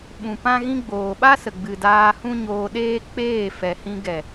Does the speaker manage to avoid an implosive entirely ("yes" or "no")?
no